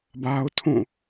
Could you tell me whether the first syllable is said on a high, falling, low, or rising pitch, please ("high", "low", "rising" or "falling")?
high